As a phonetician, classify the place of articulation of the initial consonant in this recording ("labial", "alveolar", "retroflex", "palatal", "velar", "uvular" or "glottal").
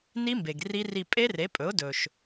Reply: alveolar